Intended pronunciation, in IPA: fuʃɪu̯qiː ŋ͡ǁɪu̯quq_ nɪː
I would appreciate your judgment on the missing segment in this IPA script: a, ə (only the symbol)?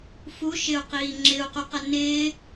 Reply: ə